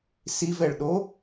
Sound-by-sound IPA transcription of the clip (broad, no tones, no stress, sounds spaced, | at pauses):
s i v ɛ ɭ ɗ o